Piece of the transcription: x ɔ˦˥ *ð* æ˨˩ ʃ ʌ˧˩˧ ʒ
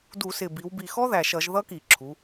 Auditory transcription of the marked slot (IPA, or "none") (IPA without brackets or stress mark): ð